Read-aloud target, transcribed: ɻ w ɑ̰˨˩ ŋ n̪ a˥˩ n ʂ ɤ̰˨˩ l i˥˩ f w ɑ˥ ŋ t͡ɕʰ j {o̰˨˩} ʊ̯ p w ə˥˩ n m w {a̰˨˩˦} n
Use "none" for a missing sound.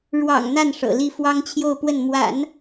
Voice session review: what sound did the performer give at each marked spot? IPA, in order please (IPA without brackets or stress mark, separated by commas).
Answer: o˥˧, a̰˨˩˦